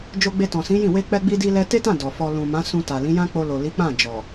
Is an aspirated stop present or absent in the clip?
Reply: absent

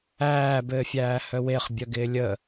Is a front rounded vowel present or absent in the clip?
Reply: present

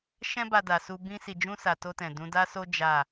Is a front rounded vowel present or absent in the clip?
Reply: absent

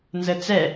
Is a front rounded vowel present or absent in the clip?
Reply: absent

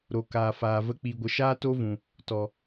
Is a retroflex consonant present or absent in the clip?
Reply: absent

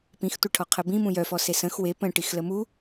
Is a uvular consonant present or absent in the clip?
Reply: present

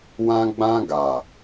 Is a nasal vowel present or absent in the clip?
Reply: present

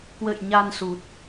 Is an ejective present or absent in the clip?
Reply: absent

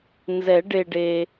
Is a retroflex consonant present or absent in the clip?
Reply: present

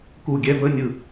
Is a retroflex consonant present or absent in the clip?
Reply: absent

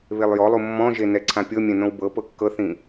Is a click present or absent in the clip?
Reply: present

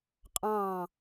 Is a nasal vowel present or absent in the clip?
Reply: present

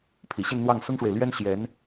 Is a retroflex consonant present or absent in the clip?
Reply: present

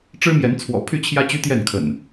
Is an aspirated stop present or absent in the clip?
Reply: present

